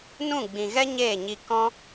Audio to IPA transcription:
nũ˦˨ɡ͡bĩ˨ɣɛ˦ ɲeː˦˨ɲi˧ kɔ̃˦

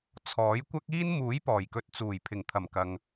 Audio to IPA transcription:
t͡sʰɔː˨˥jkʷɐ˥k̚iː˥n muː˨˥j pɔː˨˩jkɵ˨˥t̚t͡suː˨˩j pʰɪ˨˩ŋt̪ʰɐ˨˩m kɐ˨ŋ

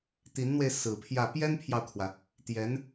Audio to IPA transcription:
t̪i˧˥nn̪we˧ɪ̯ sɹ̩˨˩pʰjä˥˩ pjɛ˥npʰjɑ˨ʊ̯kʰwä˩ | t̪jɛ˧˥n

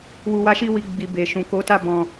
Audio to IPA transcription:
wu˨wa˨˦ʃi˧wi˨ ɡ͡bi˨be˨ʃũ˨ ko˨˦ta˦˨ bɔ̃˨

